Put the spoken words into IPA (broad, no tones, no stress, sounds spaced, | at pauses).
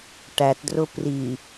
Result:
ʈ æ t d r ʊ p r i